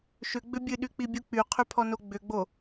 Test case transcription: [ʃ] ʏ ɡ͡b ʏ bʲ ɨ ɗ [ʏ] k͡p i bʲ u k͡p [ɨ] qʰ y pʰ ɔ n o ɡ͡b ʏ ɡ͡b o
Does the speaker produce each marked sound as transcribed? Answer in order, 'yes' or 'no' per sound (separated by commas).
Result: yes, no, no